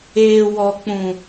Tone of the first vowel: low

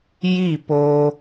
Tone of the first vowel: falling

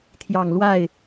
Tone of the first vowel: low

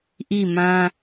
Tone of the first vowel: falling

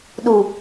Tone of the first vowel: low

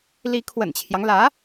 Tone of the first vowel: rising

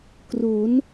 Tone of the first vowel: rising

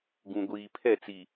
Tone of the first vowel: low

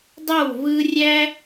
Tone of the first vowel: falling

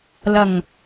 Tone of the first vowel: low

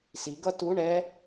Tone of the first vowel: rising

